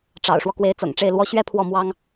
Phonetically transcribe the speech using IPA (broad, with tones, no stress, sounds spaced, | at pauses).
ʈ͡ʂ ɑ̰˨˩ ʊ̯ ʂ w ɔ˦ k w e˧˥ ɪ̯ t͡s ɤ̰˨˩ ŋ ʈ͡ʂ e˥˩ ɪ̯ l w ɔ˥ ɕ ɥ ɛ˥ pʰ w ɔ˥˩ m w ɑ˥ ŋ